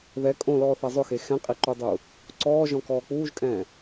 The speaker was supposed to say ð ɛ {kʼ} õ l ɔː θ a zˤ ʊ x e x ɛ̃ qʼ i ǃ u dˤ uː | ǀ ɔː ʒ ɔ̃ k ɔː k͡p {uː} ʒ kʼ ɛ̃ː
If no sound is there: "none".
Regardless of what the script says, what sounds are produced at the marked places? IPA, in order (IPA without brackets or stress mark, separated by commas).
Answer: kʼ, uː